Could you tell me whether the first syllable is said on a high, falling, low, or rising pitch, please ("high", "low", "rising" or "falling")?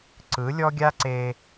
rising